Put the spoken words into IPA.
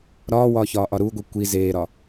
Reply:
ɾ ɒː w ɒː ç ɒː ʔ ɒ ɾ uː ɡʷ i kʷ i z eː ɾ ɒ

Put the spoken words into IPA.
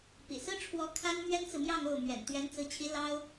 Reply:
p ḭ˨˩ s ɹ̩˥ ʈ͡ʂʰ w ɔ˧˥ kʰ a˥ n m ɥ ɛ˥ n t͡s ɹ̩˨ m j ɑ˥˧ ŋ o˥˩ ʊ̯ m ɥ ɛ̰˨˩ n t̪ ɥ ɛ˧˥ n t͡s ɹ̩˧˥ t͡ɕʰ i˧˥ l ɑ˥ ʊ̯

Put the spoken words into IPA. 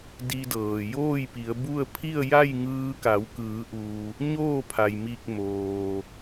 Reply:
d i˧ d ɤː˩ j oː˥˨ j p i˩˧ ə̯ b u˥˨ ə̯ pʰ i˥˨ ə̯ j a˥˨ j ŋ ɯː˧ k a˩˧ w k ɯː˩˧ ʔ u˩ | ɲ oː˥˨ pʰ a˩ j m i˧˩ k̚ m oː˩

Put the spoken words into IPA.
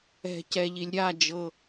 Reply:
ɛ̤˩ c ɛ˩ ʎ i˩ lʲ ɾʲ a˥˩ d͡ʒ ɤ˩

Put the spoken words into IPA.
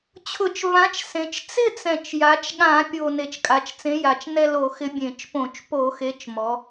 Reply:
t͡ɕʰ ʊ˧˩˧ t͡ʃ v ã˨˥ t͡ʃ s ẽ˩˧ t͡ʃ t͡s ɪ˥˧ t͡s ɛ̃˨˩ t͡ʃ j a˩˧ t͡ʃ ɠ ã˧˩˧ pʲ o˨˩ n e˨˩ t͡ʃ kʼ a˩˧ t͡ʃ t͡s ẽ˨˥ j a˨˩ t͡ʃ n ɛ˥˧ l o˧˩˧ x ɪ˨˥ bʲ ẽ˧˩˧ t͡ʃ p õ˧˩˧ t͡ʃ p o˧˩˧ x e˨˥ t͡ʃ m ɔ˩˧

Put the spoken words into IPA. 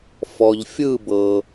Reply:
f ɔ˨ ʎ fʲ ɯ˥˧ b ɤ˨

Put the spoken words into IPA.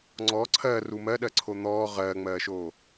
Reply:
ŋ͡ǀ ɔ ǀʰ ɜ r u m ɜ ɗ ɜ ǀʰ o n̪ ɔː ʁ ɜː ŋ͡m ɜː ʃ oː

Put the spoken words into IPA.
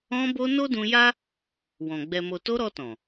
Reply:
ɔ̃˧ b o˧ n o˦ d ũ˧ j a˦ | w ɔ̃˨ ɡ͡b ɛ˨ m o˨ t o˧ ɾ ɔ˧ t ɔ̃˨

